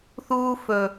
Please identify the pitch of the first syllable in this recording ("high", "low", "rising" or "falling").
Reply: high